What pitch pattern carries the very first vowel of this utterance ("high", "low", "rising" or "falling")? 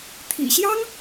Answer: low